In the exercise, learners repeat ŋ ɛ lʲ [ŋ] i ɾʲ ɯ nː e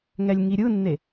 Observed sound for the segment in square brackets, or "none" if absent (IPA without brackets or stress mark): ŋ